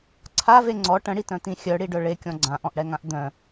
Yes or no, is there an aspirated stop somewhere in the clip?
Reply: yes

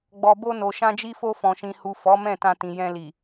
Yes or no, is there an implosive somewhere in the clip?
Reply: no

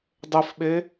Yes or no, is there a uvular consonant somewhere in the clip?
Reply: no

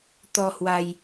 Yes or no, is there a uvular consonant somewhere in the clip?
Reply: no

